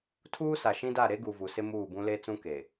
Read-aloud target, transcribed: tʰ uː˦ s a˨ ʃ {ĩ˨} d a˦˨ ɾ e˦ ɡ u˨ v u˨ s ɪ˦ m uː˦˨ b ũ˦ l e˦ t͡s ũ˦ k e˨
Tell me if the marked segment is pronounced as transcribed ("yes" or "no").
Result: no